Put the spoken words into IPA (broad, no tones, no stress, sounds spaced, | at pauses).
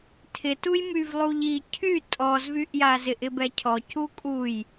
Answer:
tʰ ɪ t u j m y v lˠ u ʎ i cʰ y tʼ ɔ z v y ʔ j a z ɪ ʔ ɪ b ɛ cʰ ɔ c u kʼ u j